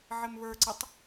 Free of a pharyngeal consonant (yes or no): no